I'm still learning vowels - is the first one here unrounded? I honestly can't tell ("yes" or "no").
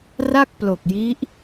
yes